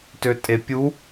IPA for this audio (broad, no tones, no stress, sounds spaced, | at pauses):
t ø tʼ e pʲ u